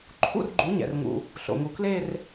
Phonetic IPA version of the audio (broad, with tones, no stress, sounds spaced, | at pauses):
ǃʰ ṵ˥˧ r ɡ͡ǃ u˩˥ ɲ ɛ̰˩ r ŋ ṵ˩ | ɬ o̰˩ ŋ u˩ k l e˥˧ r